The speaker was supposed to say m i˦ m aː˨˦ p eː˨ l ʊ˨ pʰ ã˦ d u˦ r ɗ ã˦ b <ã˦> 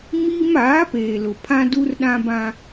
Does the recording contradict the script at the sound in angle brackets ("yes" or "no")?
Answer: no